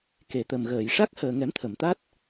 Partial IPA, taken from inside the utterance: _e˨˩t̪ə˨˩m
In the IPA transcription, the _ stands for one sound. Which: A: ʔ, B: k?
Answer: B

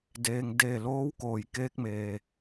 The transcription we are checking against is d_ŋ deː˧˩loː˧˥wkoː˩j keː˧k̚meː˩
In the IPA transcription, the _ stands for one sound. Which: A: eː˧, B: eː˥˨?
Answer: A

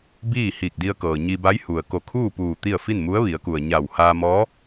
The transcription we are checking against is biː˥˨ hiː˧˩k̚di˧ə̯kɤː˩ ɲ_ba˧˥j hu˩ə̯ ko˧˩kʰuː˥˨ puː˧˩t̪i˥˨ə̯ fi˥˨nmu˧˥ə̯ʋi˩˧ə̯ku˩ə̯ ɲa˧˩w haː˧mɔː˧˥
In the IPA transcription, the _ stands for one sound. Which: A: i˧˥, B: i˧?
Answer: B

